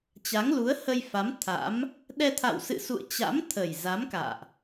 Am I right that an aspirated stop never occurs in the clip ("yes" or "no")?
no